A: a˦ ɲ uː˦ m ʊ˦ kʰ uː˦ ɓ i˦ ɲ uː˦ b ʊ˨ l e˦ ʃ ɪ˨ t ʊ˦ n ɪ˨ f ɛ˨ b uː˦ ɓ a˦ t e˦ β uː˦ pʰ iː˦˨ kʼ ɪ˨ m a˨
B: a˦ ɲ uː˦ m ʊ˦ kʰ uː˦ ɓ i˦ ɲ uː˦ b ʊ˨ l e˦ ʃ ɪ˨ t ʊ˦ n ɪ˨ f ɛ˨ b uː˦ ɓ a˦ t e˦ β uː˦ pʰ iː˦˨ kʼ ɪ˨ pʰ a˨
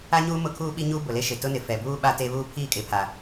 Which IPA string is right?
B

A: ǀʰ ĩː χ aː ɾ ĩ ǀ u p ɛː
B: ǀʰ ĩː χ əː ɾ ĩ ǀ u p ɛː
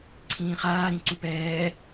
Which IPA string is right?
A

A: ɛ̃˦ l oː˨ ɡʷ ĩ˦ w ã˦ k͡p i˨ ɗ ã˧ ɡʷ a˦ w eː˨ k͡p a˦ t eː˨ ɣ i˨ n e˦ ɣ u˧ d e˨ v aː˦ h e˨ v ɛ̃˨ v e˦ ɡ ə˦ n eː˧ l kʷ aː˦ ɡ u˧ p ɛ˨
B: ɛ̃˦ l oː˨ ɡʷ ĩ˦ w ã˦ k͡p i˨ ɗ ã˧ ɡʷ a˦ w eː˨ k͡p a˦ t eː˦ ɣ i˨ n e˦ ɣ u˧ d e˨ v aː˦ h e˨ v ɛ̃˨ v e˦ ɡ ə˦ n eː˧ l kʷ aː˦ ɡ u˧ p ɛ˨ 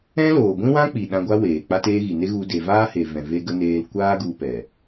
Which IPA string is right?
B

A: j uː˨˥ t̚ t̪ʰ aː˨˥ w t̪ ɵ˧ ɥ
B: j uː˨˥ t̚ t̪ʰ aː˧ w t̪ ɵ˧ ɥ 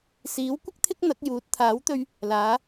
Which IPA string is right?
A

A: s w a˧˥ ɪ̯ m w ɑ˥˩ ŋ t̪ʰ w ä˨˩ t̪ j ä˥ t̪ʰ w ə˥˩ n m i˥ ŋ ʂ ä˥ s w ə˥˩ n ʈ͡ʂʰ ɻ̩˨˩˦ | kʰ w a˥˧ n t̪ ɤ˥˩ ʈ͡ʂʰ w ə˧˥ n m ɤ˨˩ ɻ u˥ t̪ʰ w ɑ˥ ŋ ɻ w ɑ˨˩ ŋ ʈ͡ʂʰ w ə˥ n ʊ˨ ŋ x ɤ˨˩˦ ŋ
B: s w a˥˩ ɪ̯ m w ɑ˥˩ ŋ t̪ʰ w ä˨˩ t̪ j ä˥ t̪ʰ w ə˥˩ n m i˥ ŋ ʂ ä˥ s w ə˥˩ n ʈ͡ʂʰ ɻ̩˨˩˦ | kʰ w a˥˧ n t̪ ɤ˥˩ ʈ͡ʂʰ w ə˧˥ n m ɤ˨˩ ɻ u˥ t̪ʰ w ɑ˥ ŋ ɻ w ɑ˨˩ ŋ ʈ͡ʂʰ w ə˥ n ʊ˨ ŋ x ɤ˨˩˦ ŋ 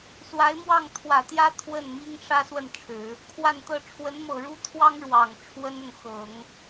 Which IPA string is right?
A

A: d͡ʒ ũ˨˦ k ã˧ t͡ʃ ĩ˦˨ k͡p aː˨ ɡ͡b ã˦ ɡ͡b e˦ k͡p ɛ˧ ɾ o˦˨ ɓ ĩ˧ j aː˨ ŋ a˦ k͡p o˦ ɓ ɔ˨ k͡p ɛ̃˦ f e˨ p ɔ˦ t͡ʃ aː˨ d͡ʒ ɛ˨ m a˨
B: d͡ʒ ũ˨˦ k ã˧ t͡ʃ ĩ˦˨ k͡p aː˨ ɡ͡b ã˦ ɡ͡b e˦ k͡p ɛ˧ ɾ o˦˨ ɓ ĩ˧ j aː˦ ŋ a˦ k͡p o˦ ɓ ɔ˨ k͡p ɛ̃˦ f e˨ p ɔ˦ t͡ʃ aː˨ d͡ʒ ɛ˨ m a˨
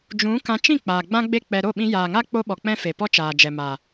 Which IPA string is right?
A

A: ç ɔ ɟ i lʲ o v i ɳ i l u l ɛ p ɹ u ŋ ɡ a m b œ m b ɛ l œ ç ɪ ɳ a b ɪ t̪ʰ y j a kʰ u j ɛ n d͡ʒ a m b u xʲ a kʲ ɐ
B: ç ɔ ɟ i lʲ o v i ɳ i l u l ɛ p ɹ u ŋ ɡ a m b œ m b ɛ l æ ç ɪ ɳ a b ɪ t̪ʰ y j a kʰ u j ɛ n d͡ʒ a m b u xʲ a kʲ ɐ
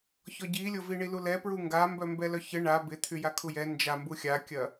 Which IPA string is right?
A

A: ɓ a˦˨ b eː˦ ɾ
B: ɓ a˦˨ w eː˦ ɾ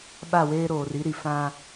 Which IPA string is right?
B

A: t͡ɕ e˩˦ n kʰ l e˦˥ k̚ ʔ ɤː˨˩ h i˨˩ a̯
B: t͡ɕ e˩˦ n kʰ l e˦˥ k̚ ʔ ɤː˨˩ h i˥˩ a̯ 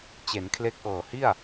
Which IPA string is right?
B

